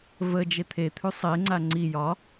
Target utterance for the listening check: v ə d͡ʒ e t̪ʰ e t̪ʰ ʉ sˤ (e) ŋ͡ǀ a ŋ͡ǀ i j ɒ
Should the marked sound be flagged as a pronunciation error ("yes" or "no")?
no